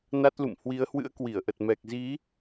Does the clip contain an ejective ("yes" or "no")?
no